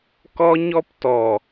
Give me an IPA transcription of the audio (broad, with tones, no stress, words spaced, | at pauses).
kɔ˦ɲɔ˦ptɔ˨